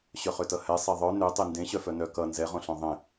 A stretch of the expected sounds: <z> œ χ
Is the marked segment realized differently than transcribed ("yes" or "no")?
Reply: yes